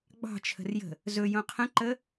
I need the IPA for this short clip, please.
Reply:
ɡ͡b ɑ̤ t͡ʃʰ ə̤ r j ə̤ | z ɵ j õ qʰ ə̃ ǃ ə

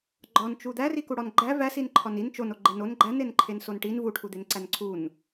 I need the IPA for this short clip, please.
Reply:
ɡ͡ǃ ɒ n t͡ʃ u d̪ æ r i k u ɽ ɒ n ɡ͡ǃ æ v æ s i n ǃʰ ɒ n i n t͡ʃ o n o ɡ͡ǃ e n o n ɡ͡ǃ æ n e n ǃʰ e n s o n ʈ i n v u ʈʰ u d̪ e n ǀ æ n ǀʰ u n

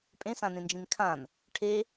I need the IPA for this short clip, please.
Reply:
pʼ ẽ s ã n ẽ n d͡ʒ ĩ n kʰ ã n | ʈʰ e

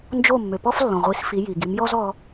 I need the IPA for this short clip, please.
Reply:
n d͡ʒ o˥˩ mː ø˩ p ɔ˥ f lː ɔ̃˩ ʁʷ i˩˥ s f i˩˥ j i˩ ɡ i˩˥ m j ɔ˥ z ɔ˧

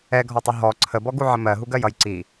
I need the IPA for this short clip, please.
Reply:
ɛ ɡʱ ɔ tˤ ʊ ɦ ɔ ǀʰ ə b ɔ ɡ u ʕ ə m ɜ ɦ u ɡ ɜ j ʌ j ǀ i

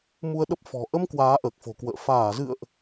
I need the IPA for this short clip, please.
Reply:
m u˧ ə̯ ɗ ə˦˥ p̚ f ɔ̤˨˩ ʔ ə˧ m k w aː˨˦ ʔ əː˨˩ k̚ f o̤˨˩ k w ə̰ː˧˨ f aː˧˩ z ɨ̰˧˨ ə̯ ʔ

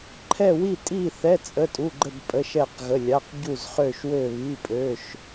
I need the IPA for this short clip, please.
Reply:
ǃʰ ɛ˥˧ w i˥˧ tʼ i˥˧ θ ɛ˧˥˧ t͡sʼ ə˧˥˧ tʼ u˧˥˧ ɡ͡ǃ ə˥˧ b pʼ ə˧˥˧ ʃ ɛ˥˧ q ɣ ə˧˥˧ lʲ a˧˥˧ q ɟ u˥˧ z χ ø˥˧ ʃ w ø˥˧ β i˧˥˧ pʼ ø˧˥˧ ʃ

